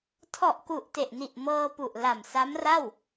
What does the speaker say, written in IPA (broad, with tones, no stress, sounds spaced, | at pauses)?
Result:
tʰ ɔ˨˩ ʔ k u˨˩ ʔ t e˨˩ ʔ n i˨˩ ʔ m ɤː˧ p u˨˩ ʔ l a˨˩ m s a˦˥ m r a˥˩ w